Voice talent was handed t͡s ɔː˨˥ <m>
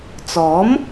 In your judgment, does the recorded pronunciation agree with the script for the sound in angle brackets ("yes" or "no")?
yes